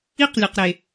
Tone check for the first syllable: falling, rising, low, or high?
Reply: high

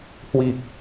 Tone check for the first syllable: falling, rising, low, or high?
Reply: low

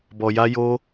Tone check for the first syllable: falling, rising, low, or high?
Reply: low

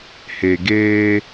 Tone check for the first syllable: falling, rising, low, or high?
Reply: low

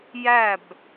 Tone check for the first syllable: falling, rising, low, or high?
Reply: falling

